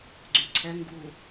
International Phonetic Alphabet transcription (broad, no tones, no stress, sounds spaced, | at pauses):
ɡ͡ǀ y ǀʰ ɛ ŋ ɡ uː